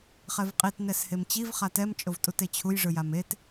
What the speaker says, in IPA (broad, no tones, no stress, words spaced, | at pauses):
χɛvqʼit nɛshemt͡ɕiv χatɛm t͡ʃʼovtʼutet͡ɕʰuj ʐɯjamet